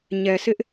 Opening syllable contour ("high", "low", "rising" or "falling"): low